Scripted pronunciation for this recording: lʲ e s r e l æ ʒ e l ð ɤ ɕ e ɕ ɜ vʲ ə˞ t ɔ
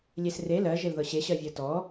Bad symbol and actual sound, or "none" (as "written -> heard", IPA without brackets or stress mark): æ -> ɜ